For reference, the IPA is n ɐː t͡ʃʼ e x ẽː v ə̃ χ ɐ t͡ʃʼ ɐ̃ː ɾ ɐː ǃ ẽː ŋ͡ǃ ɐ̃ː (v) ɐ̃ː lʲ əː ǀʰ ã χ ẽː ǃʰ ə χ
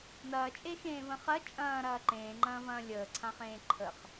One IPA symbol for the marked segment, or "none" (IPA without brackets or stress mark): v